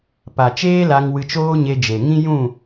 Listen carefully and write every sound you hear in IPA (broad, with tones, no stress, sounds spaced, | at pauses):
p a˨ t͡ʃ eː˦ l a˧ ŋ w ɨ˧ t͡ʃ oː˦ ɲ e˧ d͡ʒ e˨ ŋ ĩ˦ j ũ˦˨